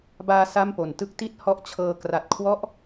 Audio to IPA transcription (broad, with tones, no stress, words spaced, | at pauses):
baː˧ sa˥˩mpo˨˩n tɯ˦˥k̚ti˥˩t̚ hɔ˥˩ʔ t͡ɕʰɤː˧ kra˨˩t̚kʰwɔ˦˥ʔ